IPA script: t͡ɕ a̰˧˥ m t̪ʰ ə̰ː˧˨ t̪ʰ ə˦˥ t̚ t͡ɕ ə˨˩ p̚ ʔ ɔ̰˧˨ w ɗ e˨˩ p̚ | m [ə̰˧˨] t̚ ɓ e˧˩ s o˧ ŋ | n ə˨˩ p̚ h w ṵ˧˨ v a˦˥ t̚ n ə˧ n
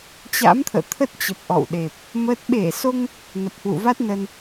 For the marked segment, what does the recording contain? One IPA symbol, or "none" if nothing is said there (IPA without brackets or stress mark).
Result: ə˦˥